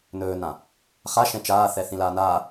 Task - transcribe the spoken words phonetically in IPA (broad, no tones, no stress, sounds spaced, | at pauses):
n ɵː n ã | χ a ʃ ɛ̃ t͡ʃ aː θ ɛ θ ĩ l aː n aː